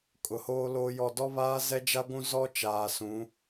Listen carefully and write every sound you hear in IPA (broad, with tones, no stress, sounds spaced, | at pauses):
kʼ ʊ˨ h oː˦ l oː˦ j ɔ˦˨ d ɔ˦ β aː˦ z ɛ˦ d͡ʒ a˦ ɡʷ ũ˦ z ɔ˦ t͡ʃ aː˨ s ũ˨˦